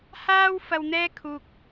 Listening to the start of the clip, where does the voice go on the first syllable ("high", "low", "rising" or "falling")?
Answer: high